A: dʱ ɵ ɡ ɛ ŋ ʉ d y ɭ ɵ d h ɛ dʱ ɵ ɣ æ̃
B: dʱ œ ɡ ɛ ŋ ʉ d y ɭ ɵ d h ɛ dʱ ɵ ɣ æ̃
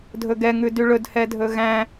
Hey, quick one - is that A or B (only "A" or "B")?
A